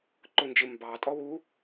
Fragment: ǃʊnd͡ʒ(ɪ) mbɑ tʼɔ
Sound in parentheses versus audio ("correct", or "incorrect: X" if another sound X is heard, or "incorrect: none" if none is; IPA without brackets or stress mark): correct